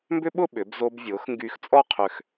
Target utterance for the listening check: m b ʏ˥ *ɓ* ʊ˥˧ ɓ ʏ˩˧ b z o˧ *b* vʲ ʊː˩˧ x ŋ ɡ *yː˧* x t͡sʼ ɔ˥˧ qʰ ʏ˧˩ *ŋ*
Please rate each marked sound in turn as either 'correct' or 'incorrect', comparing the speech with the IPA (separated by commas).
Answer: correct, correct, correct, incorrect